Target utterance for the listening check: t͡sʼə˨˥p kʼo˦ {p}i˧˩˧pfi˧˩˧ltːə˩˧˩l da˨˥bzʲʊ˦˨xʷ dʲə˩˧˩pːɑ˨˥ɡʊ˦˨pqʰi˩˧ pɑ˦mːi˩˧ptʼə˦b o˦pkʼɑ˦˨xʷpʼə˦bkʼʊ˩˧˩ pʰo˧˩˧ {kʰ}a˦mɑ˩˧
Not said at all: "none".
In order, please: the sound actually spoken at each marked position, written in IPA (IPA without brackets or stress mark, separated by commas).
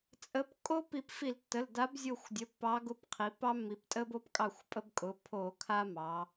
p, kʰ